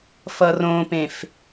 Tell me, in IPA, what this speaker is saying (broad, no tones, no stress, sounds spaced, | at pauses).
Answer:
f ʌ r õ p ẽ f